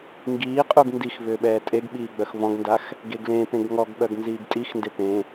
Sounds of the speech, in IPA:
ŋ ɡ iː qʼ u ɡ n d i x v ʏː ɓ ɛː tʼ e ɡ ɓ iː ɡ͡b œ x v ɔ̃ ɡ n d a x | ɡ e ɡ l ẽ p ẽ ɡ ŋ ɔ ɡ ɓ œ ɡ n z iː ɡ tʼ i x n d e p ẽ

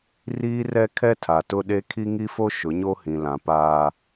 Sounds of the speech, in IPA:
r iː˦ r ɛ˦ kʰ ɛ˦ tʰ a˨ t ʊ˦ ɗ e˦ kʰ i˦ ŋ i˦ f o˦ ʃ ʊ˨˦ ɲ o˦ h ĩ˨ l ã˨ p aː˨

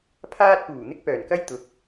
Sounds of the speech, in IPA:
pʰ aː˥ t̚ p uː˨˩ n̪ ɪ˥ k̚ p œː˨˩ n k ɐ˥ j t̪ ʊ˨ k̚

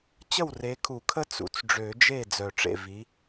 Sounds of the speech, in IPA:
t͡ɕ ə˥˩ w r e˨˦ kʰ u˨˩˦ kʰ ə˦ t͡s ṵ˨˦ t͡s ɖ͡ʐ ø˨˩˦ d͡ʒ e˥˩ d͡z œ˨˩ ʈ͡ʂ ḛ˥˩ v i˨˦

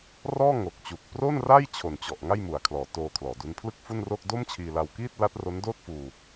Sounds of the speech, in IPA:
r ɔː˥˩ ŋ o˨˩ k̚ t͡ɕ u˨˩ k̚ p r o˥˩ n r a˥˩ j t͡ɕʰ o˨˩ n t͡ɕ ɔ˨˩ ʔ ŋ a˥˩ j m u˨˩ a̯ kʰ l ɔː˩˦ t oː˧ kʰ l ɔː˩˦ d u˦˥ n pʰ l ɯ˥˩ k̚ f u˥˩ n r o˥˩ k̚ d o˥˩ m t͡ɕʰ iː˧ l a˧ w k iː˥˩ t̚ l a˦˥ t̚ r o˦˥ n d oː˥˩ t̚ f uː˧

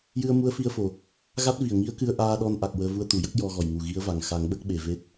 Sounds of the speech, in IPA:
j ɨ˧ ə̯ m u˧˥ ə̯ f i˧ ə̯ f o˨˩ | ɣ a˦˥ t̚ v i˨˩ ə̯ ŋ i˧˥ ə̯ k ɨ˧ ə̯ ʔ aː˧ ɗ ɔ˧ n ʔ a˨˩ k̚ w əː˧ v u˧ ə̯ t̪ u˨˩˨ j ə˦˥ k̚ j ɔ˧ ɣ ɔ˨˩ j ŋ u˨˩ ɣ i˧˥ ə̯ v a˨˩ ŋ x a˨˩˦ ŋ ɓ ə˦˥ k̚ ɓ e˨˩ v e˦˥ t̚

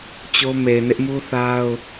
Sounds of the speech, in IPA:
t͡ɕ o˦ m e˨ ɪ̯ n ɪ˦ ʔ m u˦ θ a˦ ʊ̯

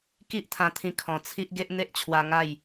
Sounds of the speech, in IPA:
k i˦ ʔ t̪ʰ ã˧ t̪ʰ ĩ˧ kʰ ɔ̃˨˩ t͡sʰ i˦ ʔ ɡ e˦ ʔ n̪ e˦ ʔ t͡ɕʰ w a˧ ŋ a˥˧ j

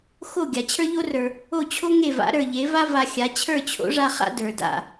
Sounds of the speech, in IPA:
x o˥˩ ɡʲ a˩ t͡ɕʰ ə˞˥ ʎ o˥ r ə˞˩ | o˥˩ t͡ɕʰ o˥ ŋ e˥˩ v a̰˩˥ ɾ ə˞˩ ʎ e˩˥ v a˥ v a˧ xʲ a˩˥ t͡ɕʰ ə˞˥˩ t͡ɕʰ o̰˩˥ ʐ a˧ χ a̰˥ d ə˞˩ d a̰˥˩

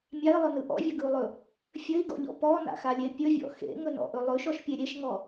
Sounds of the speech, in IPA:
mʲ a i̯ lˠ ɵ n ɯ ʔ ɔ̰ vʲ ɵ ɡ ɯ u̯ lˠ ɵ | fʲ ɘ i̯ ɡ ɔ̰ ʎ ɔ̰ p ɔ n a̰ x a lʲ e pʲ ɵ vʲ ɔ̰ x ḛ ŋ ɵ n ɔ̰ ʔ ɵ lˠ ɵ ʃ ɔ ʃ pʲ e ɾʲ e ʃ ŋ ɔ

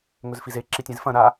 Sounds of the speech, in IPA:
ŋ ɵ z f i z e ǁ i tʲ ẽ z f ɐ̃ ɾ a

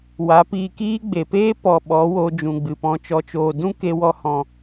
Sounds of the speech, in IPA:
w a˨˦ p iː˧ k iː˦ ɡ͡b e˨ p eː˦ p ɔ˨ ɓ ɔ˨˦ w oː˧ d͡ʒ ũ˨ ɡ͡b ɨ˨ p ɔ̃˧ t͡ʃ ɔ˨ t͡ʃ oː˨ d ũ˦ k e˧ w ɔ˧ h ɔ̃˨

